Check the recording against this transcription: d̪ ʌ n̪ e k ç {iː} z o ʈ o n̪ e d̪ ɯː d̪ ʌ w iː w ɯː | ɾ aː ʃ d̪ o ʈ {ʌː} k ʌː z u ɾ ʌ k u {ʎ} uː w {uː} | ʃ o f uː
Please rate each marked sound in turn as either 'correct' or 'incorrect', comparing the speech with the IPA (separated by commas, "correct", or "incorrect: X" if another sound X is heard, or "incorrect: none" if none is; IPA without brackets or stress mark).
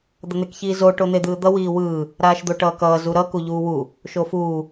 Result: correct, correct, correct, incorrect: u